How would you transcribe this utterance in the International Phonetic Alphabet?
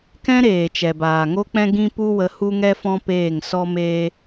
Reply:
k ɛ̃˦ ɾ eː˨ t͡ʃ ɛ˨ b aː˨ ŋ o˦ k͡p ɛ̃˦ ɡ ĩ˦ p u˦ w ə˧ h u˦ ŋ ɛ˦ f ɔ̃˦ p eː˦˨ ŋ s ɔ˦ m eː˦

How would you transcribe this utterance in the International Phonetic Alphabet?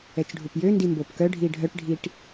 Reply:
ɛ t͡ʃ ɖʱ u p j ø n d i m b o p k œ ɖʱ i ɖʱ œ ʈ ɖʱ i ʈ

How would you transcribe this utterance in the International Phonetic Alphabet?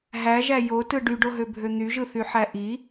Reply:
ɦ æ ʒ æ j o t ɯ ɖ y ɖ o ɦ ø bʱ ø n̪ y ʒ ɯ θ y ħ æ ʔ i

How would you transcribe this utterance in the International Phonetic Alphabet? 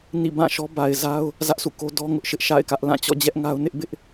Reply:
n ḭ˦˨ b ã˦˨ ʃ ɔ˦ b a˨ ɪ̯ z a˦ ʊ̯ | z ä˦ ʔ s ṵ˦˨ k o˦ d ɔ˦ ŋ ʊ˦ ʔ ʃ ɪ˦ ʔ ʃ a̰˦˨ ɪ̯ k ä˦ ʔ l ã˦˨ t͡ɕ ɔ̰˦˨ d͡ʑ ɛ˦ ʔ ŋ a˦ ʊ̯ n ɪ˦ ʔ b ɪ˦ ʔ

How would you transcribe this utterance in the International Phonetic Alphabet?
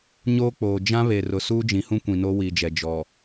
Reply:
ɲ oː˦ k͡p oː˨ d͡ʒ ã˦ β e˨ r ʊ˨ s uː˦ d͡ʒ ĩ˨ h ũ˦ kʷ ĩ˨ n o˦ w iː˨ d͡ʒ ɛ˨ d͡ʒ ɔ˨

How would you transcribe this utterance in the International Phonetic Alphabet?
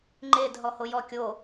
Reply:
ŋ͡ǃ e d ɦ ɔ h o j ɔ kʲ o

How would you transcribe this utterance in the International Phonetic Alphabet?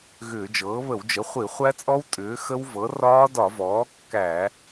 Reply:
ɣ ʏː˧˩˧ d͡ʒ ɤː˩˥ β ə˧˩˧ w d͡ʒ ə˩˥ χʷ i˧˩˧ χʷ æ˦˥ t͡sʼ ɔ˦˥ w tʼ ʏː˩˥ x ə˦˥ w v ɤ˩˥ r ɒː˦˥ d ɒ˧˩˧ v ɔː˩˥ kː æ˧˩˧

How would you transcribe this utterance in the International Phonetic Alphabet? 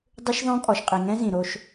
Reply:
dˤ ɯ˦ ʃ ð ɔ̃˦ kʼ ɔ˨ ʃ qʼ i˨ ŋ ɛ̃˦ z ĩ˨ ɾ o˦ ʃ

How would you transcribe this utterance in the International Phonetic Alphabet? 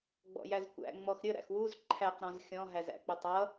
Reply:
ɡ͡b ɔ̰ j æ z kʷ æ̰ ŋ͡m ɔ x ɾʲ ə ɾ æ̰ x w u z ǃʰ æ q ɾ ɔ̃ z xʲ ɔ̃ ɦ æ z æ̰ k͡p ʊ tˤ ʌ

